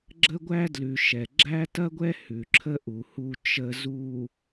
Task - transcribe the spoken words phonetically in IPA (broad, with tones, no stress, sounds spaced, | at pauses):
ɡ͡ǁ ə˦ ɡʷ æ˦ d l ʉ˨ ʃ ɛ˨ ɡ͡ǁ æ˦ t ɐ˦ ɡʷ ɛ˦ h ʉ˨ ǁʰ ə˦ ʔ u˨ h u˨ t͡ʃ ə˨ z u˨